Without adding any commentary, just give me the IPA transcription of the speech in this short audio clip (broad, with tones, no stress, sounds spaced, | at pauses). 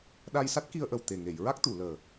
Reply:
ɗ a˧ j s a˦˥ t̚ k i˧ ə̯ ʔ ə˨˩ w t̪ e˨˩ ŋ e˨˩˨ j ɹ a˦˥ k̚ t̪ u˨˩˨ l əː˨˩